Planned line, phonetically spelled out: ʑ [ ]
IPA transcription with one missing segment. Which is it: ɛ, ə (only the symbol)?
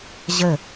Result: ə